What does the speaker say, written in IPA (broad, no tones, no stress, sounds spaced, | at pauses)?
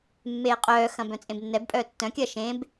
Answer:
mː eː qʼ œː x ɐ̃ b œ̃ t͡sʼ ẽ b nː ɛ b pʼ œː tː œ̃ kʲ ɐː ʃ ẽ b